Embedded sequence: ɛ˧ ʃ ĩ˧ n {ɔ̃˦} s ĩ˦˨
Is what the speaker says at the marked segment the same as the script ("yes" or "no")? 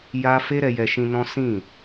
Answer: yes